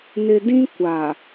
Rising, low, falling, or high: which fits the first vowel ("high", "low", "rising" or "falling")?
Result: low